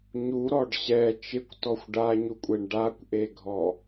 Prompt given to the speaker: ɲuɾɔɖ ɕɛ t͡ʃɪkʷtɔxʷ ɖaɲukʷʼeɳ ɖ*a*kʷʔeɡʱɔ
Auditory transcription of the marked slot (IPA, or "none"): a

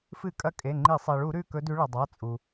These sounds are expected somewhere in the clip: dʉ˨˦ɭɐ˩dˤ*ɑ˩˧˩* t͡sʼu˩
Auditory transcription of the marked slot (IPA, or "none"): a˩˧˩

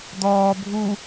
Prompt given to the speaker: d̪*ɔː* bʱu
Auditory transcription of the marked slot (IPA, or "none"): ɔː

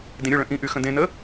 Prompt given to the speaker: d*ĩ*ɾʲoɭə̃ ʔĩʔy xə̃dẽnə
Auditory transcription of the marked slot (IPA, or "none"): ĩ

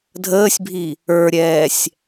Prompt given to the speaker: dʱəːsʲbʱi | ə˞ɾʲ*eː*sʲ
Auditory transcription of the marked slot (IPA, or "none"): ɛː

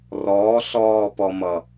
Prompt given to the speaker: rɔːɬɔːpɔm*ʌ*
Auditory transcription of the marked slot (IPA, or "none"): ʌ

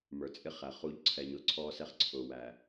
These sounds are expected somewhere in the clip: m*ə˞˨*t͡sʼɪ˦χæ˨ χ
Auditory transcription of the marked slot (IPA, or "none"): ə˞˨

